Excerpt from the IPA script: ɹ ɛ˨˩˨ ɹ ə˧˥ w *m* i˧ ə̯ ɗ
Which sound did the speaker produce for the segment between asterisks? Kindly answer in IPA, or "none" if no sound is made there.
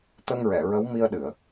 m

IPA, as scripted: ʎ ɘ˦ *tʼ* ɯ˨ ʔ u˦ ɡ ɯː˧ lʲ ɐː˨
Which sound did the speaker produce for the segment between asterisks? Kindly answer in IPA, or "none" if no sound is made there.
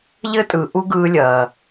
tʼ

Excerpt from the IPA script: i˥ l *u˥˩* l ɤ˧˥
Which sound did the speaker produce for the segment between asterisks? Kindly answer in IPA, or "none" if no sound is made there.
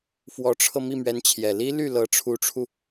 y˥˩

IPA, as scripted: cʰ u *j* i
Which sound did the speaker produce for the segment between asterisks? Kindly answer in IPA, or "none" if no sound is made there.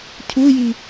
j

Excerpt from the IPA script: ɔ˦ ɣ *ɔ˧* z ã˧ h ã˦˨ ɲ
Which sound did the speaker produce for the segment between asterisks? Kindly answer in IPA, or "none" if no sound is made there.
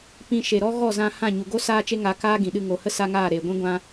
ɔ˦˨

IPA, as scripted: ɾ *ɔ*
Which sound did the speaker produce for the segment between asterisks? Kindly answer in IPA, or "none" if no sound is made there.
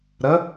ə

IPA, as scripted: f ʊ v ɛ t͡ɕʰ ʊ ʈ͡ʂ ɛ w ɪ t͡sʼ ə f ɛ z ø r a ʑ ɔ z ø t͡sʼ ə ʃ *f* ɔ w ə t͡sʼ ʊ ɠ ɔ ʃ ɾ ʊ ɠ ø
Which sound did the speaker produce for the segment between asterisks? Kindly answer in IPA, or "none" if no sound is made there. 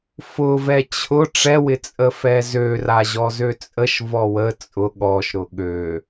v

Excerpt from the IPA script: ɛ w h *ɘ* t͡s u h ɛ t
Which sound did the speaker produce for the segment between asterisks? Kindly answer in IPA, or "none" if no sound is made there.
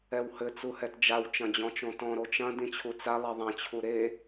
ɘ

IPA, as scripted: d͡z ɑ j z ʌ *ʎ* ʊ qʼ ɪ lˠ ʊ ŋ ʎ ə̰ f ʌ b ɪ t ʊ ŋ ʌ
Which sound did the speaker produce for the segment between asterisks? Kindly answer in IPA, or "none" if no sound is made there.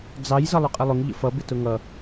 lˠ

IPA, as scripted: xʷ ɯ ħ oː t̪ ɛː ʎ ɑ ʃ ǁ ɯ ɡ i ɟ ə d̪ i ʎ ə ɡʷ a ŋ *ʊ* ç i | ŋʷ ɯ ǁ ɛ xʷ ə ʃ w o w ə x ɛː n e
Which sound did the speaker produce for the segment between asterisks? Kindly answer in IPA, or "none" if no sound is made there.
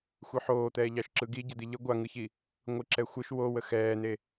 ɯ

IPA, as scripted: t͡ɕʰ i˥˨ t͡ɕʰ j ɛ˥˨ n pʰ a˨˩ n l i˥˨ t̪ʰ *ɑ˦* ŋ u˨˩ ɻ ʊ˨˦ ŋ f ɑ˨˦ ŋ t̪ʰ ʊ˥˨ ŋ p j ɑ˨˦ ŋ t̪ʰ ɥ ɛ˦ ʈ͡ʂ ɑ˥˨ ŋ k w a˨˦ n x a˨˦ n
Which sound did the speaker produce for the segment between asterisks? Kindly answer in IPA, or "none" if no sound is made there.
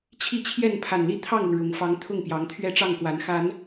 ɑ˥˨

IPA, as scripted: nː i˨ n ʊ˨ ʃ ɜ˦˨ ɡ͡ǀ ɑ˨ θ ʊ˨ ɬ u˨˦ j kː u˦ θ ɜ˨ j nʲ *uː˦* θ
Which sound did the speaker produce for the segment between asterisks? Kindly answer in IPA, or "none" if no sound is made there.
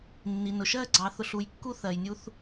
u˦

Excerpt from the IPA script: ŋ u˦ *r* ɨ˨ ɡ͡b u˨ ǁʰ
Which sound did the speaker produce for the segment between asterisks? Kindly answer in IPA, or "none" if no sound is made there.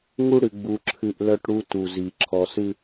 ɽ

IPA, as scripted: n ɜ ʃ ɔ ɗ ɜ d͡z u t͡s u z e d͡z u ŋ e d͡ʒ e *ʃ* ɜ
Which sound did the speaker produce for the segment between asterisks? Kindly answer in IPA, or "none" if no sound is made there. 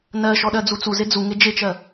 t͡ʃ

